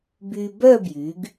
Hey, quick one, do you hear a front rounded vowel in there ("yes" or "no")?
yes